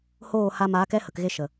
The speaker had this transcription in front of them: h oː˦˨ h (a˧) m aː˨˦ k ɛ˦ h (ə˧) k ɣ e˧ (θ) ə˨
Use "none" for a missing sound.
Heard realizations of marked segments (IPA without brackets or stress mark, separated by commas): a˧, ə˨, ʃ